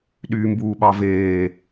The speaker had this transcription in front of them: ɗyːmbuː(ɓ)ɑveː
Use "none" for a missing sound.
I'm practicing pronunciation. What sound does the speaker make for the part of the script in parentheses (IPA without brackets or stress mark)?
ɓ